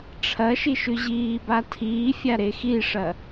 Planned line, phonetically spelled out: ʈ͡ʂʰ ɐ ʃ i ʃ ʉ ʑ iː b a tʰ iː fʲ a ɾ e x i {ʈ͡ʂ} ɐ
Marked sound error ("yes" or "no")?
yes